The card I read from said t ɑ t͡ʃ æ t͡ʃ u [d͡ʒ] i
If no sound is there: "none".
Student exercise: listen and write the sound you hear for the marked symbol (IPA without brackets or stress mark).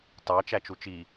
t͡ʃ